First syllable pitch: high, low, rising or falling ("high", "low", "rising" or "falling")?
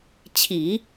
low